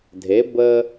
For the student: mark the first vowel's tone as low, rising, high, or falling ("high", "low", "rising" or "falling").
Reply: rising